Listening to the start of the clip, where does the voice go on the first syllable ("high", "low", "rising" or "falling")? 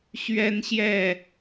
high